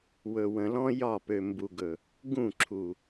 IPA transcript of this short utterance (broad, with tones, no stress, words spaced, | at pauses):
wɵ˨wə̃˨lɔ̃˦ jɒ˦˨pø˨ mbu˨ɡɵ˨ | ɡũ˦˨ ǁʰu˨